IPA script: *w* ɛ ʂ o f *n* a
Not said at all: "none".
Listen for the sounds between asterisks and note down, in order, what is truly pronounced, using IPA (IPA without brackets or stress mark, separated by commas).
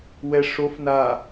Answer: w, n